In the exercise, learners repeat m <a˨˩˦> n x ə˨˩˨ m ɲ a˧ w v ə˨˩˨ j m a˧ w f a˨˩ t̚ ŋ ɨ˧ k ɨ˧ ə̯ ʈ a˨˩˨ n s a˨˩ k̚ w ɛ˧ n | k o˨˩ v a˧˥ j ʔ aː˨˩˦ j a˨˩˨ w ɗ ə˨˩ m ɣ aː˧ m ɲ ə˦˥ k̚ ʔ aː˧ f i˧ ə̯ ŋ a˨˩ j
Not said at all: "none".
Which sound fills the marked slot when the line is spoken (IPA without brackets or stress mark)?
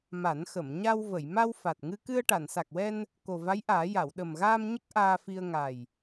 a˨˩˦